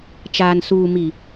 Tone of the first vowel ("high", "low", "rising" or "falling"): low